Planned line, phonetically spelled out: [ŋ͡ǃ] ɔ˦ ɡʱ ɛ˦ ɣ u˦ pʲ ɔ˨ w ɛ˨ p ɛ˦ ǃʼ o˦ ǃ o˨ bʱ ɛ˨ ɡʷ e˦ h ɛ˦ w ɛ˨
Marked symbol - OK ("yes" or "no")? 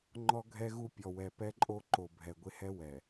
yes